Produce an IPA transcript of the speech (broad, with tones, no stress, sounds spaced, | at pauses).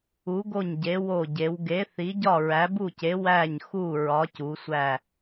u˨˦ ɡ o˦˨ ɲ ɟ e˨˦ w o˦˨ ɟ e˨˦ w ɡ e˨˦ θ i˨˦ ɟ ɒ˦˨ ɹ æ˨˦ b u˦˨ c e˨˦ w æ˦˨ ɲ x u˦˨ ɹ ɒ˨˦ c u˨˦ sʷ æ˦˨